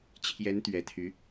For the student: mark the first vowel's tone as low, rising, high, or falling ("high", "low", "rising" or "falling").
rising